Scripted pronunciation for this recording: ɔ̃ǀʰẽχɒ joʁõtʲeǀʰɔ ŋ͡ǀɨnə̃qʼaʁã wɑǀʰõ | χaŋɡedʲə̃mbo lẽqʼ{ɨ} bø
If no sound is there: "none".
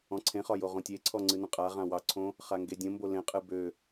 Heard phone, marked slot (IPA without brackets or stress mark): ɨ